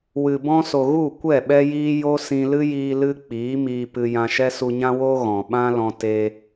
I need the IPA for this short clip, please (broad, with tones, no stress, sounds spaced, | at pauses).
w ɨ˨ b ɔ̃˧ s o˨ ɣ u˦˨ kʷ ɛ˦˨ ɓ ɛ˦ j iː˦ j o˦ s ĩ˧ l ɨ˦ j iː˧ l ɨ˦ k͡p iː˨˦ m iː˧ p ɨ˧ j ã˧ ʃ ɛ˦ s u˧ ɲ ã˦ w o˦ ɣ ɔ̃˨ ɓ ã˦ l ɔ̃˧ t e˧